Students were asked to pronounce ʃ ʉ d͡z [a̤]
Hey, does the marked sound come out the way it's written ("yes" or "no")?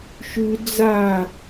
no